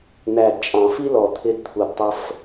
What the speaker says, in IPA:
n̪ æ˨ d t͡ʃʼ ɑ̃˨ f i˦ l ɔ˨ t̪ʰ ɪ˧ d t̪ʰ u˨ d tˤ ə˧ f

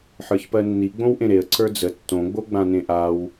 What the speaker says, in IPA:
ħ ə˞ ç p ɜ nː i ɡ͡b õ w ʔ ẽ ɾ e ə̯ ǀ ə˞ d͡z ə tː õ ɡ͡b o ɡ͡b ã n ẽ ʔ a w

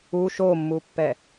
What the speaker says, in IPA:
u ʃ o mː u pː ɛ

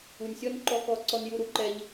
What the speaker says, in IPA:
u˨ nʲ sʲ ɔ˦ n ǃ ɔ˦ k ɔ˧ ǀ ɔ˧ n j u˧ ɾ u˨ ǃ ɛ˧ ʎ

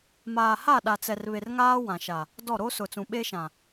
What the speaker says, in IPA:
m aː˨ h a˦˨ ɗ a˨ t͡s ɛ˨ r β e˨ r ŋ aː˦ w ã˨ ʃ a˨ | d ɔ˦˨ ɾ o˦ s ʊ˨ t͡s ũ˨ ɓ e˦ ʃ ã˨

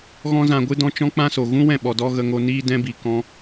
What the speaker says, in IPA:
ɣ ɔ̃˦ z ã˧ ɡʷ ɨ˦ d ɔ̃˦ t͡ʃ ɔ̃˦ k͡p ã˦ s o˨ ɣ ũ˦ w ɛ̃˦˨ ɓ ɔ˨ d ɔ˧ ɣ ə˧ ŋ o˧ n iː˦ d ɛ̃˧ b i˨ k ɔ̃˧

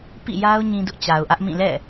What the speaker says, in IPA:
p ḭ˦˨ j a˦ ʊ̯ ɲ ĩ˦ d ʊ˦ ʔ t͡ɕ a˨ ʊ̯ ʔ ä˦ ʔ m ĩ˦˨ l ɛ̰˦˨

